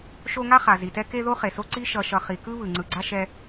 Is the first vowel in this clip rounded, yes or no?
yes